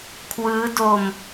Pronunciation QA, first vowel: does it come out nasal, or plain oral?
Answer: oral